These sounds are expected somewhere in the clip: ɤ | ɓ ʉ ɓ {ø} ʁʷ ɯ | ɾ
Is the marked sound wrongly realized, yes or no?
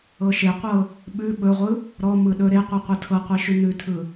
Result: yes